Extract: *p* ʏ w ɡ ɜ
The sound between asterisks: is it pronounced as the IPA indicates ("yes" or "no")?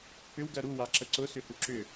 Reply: yes